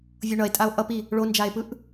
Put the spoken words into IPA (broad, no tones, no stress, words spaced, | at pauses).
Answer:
vʲoɳʌe̯tʼao̯ ʔʌpi | ɭond͡ʒae̯pɯʔ